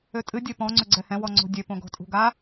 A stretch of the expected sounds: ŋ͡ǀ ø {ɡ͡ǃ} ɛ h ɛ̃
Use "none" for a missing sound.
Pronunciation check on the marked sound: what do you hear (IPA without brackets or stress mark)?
ɡ͡ǀ